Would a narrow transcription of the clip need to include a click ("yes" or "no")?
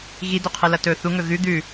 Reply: no